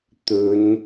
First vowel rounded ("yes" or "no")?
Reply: yes